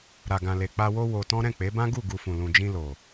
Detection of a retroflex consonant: absent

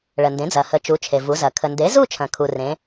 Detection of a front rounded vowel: absent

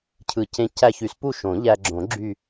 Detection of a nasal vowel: present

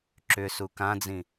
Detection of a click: present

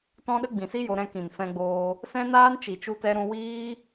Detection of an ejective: absent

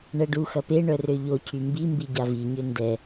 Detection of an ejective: absent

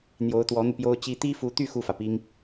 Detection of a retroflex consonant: absent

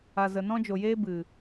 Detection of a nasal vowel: present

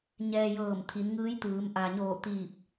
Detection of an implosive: absent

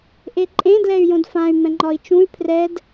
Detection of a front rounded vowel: present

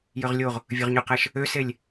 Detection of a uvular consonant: present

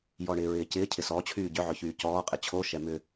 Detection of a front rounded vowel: present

